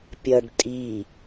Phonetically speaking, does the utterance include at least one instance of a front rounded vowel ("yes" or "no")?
no